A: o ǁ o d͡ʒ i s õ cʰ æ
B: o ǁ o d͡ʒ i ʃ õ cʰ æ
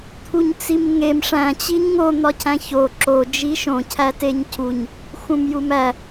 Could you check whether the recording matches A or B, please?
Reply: B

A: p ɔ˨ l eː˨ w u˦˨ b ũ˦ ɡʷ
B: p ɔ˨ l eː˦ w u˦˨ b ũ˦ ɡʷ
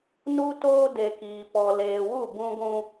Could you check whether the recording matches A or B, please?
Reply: A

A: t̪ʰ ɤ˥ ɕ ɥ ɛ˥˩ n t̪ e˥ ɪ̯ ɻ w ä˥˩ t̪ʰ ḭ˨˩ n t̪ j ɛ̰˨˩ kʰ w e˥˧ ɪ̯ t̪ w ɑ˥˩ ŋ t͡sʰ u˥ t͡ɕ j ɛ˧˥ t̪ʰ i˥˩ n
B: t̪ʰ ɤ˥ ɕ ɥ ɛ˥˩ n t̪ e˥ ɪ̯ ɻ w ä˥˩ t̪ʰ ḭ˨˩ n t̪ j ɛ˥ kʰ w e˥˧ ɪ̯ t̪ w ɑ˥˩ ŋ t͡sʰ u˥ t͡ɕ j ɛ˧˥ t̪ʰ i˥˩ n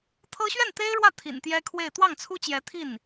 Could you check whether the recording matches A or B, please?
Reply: B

